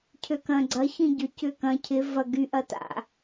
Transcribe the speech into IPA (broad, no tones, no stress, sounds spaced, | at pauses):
cʰ ø k ɐ̃ ɡ͡ǀ ɐ ç ĩ ɟ ʏ c ʏ k ɐ̃ cʰ ɪ v ɐ ɡ y ʔ ɐ t a̰